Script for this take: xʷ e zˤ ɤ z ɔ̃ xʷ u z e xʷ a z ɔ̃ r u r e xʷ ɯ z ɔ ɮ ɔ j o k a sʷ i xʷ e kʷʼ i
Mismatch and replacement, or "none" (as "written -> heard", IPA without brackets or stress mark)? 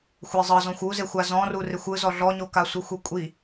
j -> ɲ